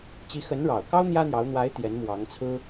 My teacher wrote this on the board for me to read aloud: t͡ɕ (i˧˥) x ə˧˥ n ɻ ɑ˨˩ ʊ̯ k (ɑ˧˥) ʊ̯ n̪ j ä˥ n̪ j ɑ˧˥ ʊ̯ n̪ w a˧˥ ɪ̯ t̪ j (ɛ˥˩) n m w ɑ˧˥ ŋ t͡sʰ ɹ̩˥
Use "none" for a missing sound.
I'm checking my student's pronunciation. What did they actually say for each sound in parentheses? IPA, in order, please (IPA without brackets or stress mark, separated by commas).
i˧˥, ɑ˥, ɛ˧˥